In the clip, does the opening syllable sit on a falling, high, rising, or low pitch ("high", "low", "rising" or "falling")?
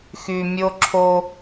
low